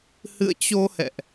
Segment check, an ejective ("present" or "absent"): absent